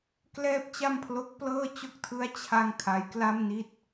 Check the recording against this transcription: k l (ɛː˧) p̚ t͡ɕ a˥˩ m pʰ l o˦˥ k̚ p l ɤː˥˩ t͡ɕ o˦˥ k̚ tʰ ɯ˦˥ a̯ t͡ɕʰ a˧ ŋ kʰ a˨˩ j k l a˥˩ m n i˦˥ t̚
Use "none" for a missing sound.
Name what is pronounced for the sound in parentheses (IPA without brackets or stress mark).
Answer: ɛː˥˩